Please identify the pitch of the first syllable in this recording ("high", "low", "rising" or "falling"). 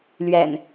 low